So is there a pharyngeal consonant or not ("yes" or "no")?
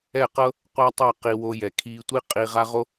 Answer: no